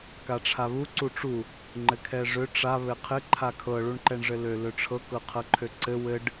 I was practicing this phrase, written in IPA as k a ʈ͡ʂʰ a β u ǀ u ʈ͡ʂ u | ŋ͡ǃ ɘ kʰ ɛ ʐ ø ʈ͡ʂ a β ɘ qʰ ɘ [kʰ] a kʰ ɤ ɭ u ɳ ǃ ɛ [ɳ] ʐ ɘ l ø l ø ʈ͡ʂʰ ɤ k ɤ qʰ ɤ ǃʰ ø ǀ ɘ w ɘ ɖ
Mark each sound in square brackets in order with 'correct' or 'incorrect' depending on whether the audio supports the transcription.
incorrect: ǃʰ, correct

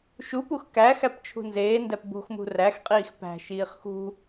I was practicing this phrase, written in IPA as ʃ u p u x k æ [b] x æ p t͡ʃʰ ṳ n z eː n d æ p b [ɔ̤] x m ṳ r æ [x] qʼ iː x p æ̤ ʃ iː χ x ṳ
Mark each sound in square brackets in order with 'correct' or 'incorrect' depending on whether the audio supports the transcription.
incorrect: none, incorrect: o̤, correct

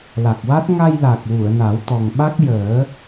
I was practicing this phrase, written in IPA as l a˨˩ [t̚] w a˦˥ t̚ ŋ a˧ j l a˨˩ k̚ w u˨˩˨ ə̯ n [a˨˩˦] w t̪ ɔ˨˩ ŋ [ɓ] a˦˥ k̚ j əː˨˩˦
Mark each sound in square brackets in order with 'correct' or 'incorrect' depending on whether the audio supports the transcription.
incorrect: k̚, correct, correct

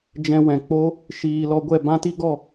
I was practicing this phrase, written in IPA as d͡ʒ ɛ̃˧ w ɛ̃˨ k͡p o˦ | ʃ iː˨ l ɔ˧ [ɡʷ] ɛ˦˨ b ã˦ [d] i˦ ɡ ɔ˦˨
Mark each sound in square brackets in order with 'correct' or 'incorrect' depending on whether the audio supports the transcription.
correct, incorrect: t

